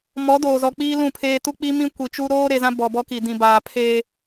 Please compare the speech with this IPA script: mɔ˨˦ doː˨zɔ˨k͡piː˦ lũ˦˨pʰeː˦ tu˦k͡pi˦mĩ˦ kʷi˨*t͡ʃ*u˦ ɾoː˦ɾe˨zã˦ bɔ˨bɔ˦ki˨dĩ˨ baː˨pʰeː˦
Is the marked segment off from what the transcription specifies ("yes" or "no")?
no